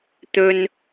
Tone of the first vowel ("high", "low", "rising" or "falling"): high